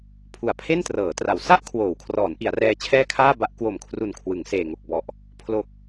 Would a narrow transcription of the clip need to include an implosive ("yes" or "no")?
no